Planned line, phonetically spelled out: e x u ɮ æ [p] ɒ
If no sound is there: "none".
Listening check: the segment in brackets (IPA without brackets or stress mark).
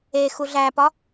p